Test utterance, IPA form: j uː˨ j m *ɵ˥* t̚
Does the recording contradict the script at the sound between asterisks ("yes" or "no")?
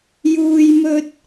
yes